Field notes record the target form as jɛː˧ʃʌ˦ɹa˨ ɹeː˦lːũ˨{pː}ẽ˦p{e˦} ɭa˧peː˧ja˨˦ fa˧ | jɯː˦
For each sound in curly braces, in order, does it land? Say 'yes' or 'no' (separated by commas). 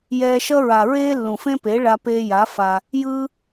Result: no, no